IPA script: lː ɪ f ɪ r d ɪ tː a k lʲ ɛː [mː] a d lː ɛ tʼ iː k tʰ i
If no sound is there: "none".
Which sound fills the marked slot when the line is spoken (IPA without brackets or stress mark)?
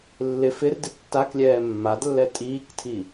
mː